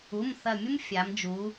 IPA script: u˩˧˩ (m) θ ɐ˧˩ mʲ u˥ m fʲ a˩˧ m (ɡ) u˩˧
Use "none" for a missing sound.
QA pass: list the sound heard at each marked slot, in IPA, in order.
m, d͡ʒ

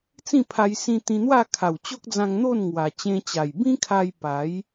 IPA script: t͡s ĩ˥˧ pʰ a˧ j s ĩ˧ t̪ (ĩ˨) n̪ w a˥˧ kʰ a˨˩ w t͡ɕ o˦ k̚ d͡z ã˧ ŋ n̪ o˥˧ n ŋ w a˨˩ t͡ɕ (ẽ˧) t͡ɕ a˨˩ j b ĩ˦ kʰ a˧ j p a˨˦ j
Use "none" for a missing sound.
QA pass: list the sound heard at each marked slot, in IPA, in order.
ĩ˧, ẽ˧

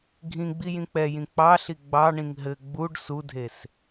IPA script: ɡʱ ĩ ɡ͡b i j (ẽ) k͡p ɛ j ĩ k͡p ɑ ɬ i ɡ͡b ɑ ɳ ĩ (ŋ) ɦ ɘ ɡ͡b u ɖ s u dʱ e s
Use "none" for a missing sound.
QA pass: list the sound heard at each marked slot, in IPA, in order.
ĩ, ŋ

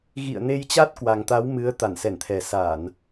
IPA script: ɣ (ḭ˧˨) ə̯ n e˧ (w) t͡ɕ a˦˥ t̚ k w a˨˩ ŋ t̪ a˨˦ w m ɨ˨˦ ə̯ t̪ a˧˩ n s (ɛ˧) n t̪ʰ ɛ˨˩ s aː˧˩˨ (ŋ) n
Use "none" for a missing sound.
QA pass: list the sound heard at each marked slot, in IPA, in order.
ḭ˧˨, j, ɛ˧˩, none

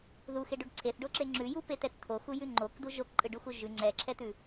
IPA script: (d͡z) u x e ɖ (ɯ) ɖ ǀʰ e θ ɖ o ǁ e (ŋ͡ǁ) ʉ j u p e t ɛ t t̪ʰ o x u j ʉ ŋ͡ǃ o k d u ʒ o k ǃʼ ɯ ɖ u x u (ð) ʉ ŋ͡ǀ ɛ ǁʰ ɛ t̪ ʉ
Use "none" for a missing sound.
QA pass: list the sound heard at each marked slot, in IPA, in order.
ð, u, ŋ͡ǁ, ʒ

